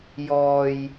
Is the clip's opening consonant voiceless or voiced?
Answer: voiced